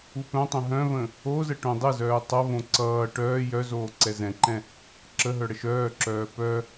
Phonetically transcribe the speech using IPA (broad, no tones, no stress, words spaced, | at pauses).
upœ̃tˤə̃ ɦœ̃və̃ | ozə ʈõdˤəzœː tˤʌvõ ǀʌː ʈœː jœzoː ǀɛzɛ̃ǃɛ̃ | ǁəɦœ ɽəʃœːǁœː pœ